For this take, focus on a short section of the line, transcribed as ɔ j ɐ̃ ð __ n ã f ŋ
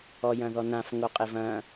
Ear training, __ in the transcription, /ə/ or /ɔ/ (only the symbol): ɔ